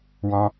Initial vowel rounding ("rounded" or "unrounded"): rounded